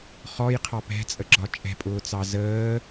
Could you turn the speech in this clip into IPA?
χɔjqʰɑ pɛ̤t͡sʼəɡ͡ǁɒ t͡ʃʼɛ̤pʼʊːt͡sɑ zəː

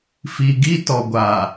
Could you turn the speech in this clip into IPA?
fi˨ɡi˦ tɔ˨ɡʷa˨

